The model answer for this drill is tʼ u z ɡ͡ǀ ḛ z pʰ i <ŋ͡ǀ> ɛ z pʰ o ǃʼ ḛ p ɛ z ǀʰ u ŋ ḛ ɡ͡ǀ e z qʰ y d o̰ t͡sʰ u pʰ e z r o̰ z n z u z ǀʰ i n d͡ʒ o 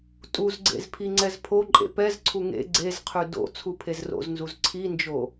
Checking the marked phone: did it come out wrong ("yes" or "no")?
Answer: no